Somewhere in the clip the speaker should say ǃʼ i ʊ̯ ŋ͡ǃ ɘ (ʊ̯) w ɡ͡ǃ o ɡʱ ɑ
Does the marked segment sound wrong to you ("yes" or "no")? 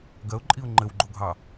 yes